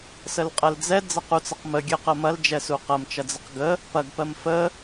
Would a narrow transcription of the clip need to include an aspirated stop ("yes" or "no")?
no